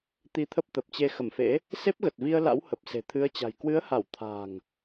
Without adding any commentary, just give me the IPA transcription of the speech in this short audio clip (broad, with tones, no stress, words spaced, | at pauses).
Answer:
t̪i˧t̪ʰə˦˥p̚t̪ə˨˩p̚t͡ɕe˧ xə˧˩mfḛ˧˥ | se˦˥p̚ɣə˨˩t̚vi˧ə̯la̰˧˥w hə˨˩p̚se̤˨˩t̪ʰɨ˨˦ə̯t͡ɕa̤˨˩j kwɨ˨˦ə̯ha˧˩w t̪ʰa̤˨˩ŋ